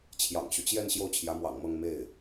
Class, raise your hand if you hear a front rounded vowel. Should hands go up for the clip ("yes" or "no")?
yes